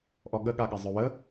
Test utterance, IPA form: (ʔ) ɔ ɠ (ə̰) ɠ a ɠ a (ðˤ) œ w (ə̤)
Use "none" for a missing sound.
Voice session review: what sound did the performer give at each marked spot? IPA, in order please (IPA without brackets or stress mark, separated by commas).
ʔ, ə, zˤ, ə